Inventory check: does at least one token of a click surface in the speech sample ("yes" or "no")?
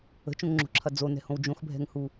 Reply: yes